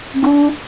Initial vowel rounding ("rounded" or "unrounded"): rounded